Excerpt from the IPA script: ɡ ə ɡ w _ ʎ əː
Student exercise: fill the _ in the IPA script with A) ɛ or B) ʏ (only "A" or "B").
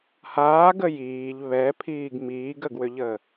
B